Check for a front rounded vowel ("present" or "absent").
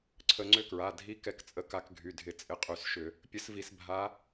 present